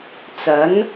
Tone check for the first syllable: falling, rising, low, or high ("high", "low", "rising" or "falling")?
rising